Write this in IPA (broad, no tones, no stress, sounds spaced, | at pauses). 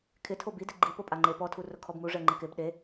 kʰ ɪ tʰ o b i d ɪ ɡ͡ǃ i p o pʼ a ŋ͡ǃ e p ɔ tʰ u r ʊ kʰ ɔ b m u ʐ ɛ ŋ͡ǃ ɪ k ɪ b ɗ e